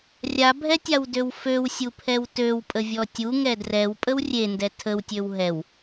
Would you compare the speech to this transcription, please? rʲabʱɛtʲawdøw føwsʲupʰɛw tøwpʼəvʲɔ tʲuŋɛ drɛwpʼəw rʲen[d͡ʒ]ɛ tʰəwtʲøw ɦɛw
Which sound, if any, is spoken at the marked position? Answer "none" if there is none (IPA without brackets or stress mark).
d